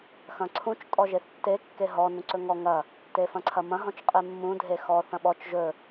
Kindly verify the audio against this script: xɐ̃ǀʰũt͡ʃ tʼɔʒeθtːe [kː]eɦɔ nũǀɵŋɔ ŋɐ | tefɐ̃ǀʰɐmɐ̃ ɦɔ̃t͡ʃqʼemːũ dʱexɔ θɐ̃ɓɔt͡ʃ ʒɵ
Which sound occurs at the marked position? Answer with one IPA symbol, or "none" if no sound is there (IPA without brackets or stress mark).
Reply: kː